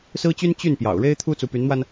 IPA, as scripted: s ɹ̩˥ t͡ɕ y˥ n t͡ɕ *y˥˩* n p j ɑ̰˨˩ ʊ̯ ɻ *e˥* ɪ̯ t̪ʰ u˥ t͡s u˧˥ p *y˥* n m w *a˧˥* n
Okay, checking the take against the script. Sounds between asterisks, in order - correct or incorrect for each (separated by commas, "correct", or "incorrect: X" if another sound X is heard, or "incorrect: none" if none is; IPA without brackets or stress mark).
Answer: correct, correct, incorrect: y˧˥, incorrect: a˧